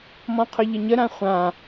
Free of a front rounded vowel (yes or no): no